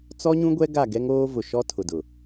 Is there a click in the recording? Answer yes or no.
no